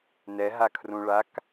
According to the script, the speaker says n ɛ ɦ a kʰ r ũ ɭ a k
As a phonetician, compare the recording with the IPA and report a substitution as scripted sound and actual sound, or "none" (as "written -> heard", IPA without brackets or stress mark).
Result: none